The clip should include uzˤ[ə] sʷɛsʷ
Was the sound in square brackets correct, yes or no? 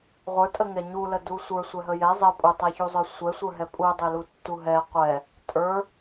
no